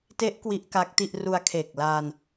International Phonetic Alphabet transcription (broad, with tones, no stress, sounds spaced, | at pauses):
t e˦˥ ʔ k w i˦˥ ʔ k a˦˥ k̚ t i˥˩ ʔ r u˧ a̯ kʰ e˨˩ k̚ l aː˧ n